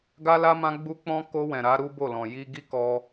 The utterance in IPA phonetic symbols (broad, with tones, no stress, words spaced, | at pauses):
ɡa˦la˦ mã˧ɡ͡bu˧k͡pɔ̃˧ ko˧ wɛ̃˨ɾa˨˦ ɾu˦bo˦˨lɔ̃˨ ji˧ɡi˦kɔ˧